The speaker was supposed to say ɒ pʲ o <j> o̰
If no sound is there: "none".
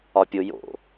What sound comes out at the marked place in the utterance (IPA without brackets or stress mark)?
j